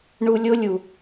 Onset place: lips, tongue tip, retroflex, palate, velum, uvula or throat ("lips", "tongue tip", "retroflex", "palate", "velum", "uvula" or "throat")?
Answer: retroflex